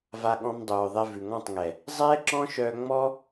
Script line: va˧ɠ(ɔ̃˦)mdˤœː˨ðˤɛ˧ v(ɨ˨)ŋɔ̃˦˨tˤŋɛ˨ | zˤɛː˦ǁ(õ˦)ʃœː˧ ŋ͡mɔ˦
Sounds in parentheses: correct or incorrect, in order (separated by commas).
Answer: incorrect, incorrect, incorrect